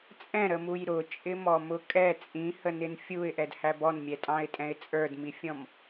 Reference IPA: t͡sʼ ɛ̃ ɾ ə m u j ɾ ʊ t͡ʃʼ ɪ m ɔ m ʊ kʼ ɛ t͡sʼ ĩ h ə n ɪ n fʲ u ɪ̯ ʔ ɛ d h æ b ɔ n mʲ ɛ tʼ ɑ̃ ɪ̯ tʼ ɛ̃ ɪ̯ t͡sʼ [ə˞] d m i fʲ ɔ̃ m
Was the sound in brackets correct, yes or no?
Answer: yes